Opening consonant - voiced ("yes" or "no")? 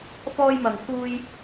no